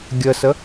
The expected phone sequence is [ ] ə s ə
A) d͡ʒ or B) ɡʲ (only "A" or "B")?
B